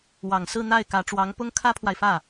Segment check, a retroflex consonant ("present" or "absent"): present